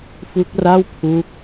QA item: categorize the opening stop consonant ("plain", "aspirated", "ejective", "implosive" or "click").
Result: plain